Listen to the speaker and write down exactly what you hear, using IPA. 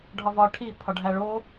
ɖʱ ɒ v ɒ ʈʰ i pʰ ɒ ɖʱ æ ɭ o

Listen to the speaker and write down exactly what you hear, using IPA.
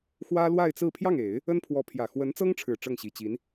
x w ä˥ l w a˥˧ ɪ̯ t͡s ɹ̩˥˧ pʰ j ɑ˥˩ ŋ e˨˩˦ ɪ̯ | ə˥ n pʰ w ɔ˧˥ pʰ j ä˨˩ x w ə˧˥ n t͡s ɤ˥ ŋ ʈ͡ʂʰ ɻ̩˨˩ ʈ͡ʂ ɤ˥˩ ŋ ɕ i˨˩ t͡ɕ i˧˥ n

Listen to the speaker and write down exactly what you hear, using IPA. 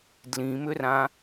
d l ĩ m ʏ r ã

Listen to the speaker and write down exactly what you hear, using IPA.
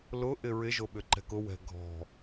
l ʊ ʔ ɪ ɹ ɪ ʒ o ɓ ʏ ǃ ɛ̤ k ʊ w ɛ̤ ɡʱ ɔ̤

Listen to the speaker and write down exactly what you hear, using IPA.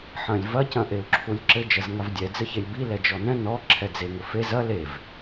ħ ɐ̃ lʲ v ɐ c ɐ̃ ʔ e u̯ ǁʰ u lʲ ǁ ɘ d͡ʒ ɐ z ŋ a v dʲ ɛ d͡z ɘ ç e lʲ b i l ɛ d͡ʒ ɔ n ɛ̃ n ɔ ǁʰ ɛ d͡z e ŋ ɘ f e z ɐ l e v

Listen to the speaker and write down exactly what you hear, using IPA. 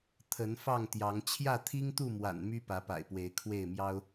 t̪ʰ ə˨˦ n f ɑ˥˨ ŋ t̪ j ɑ˨˦ ŋ t͡ɕʰ j ä˥˨ t̪ʰ i˦ ŋ t̪ u˥˨ m w a̰˨˩ n m y˦ p ä˨˦ p a̰˨˩ ɪ̯ p w e˨˦ ɪ̯ kʰ w e˥˨ ɪ̯ m j ɑ˦ ʊ̯

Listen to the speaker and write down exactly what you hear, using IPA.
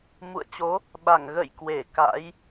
m ṵ˧˨ ə̯ t͡ɕ o˨˦ | ɓ a˧˩ ŋ ɣ ə̰˧˨ j k w e˧˩ k a̰˧˥ j

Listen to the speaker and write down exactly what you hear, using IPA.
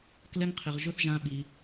k l ɛ˦ ŋ qʰ ɪ˧ ʁ ʒ ʊ˦ θ ʒ ã˧ ɓ i˧

